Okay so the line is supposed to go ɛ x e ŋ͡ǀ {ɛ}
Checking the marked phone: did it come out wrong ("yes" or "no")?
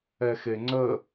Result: yes